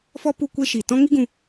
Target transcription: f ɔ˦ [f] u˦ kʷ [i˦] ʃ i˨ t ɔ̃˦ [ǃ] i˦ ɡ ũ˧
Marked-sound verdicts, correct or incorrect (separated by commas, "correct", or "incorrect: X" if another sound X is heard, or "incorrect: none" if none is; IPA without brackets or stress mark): incorrect: p, incorrect: e˦, incorrect: ŋ